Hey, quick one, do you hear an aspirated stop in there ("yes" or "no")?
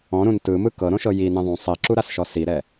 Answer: no